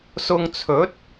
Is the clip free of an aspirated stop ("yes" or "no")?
no